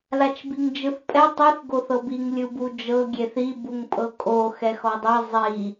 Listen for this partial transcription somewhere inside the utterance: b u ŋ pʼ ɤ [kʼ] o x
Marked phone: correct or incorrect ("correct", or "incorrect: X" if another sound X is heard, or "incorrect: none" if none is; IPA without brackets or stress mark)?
correct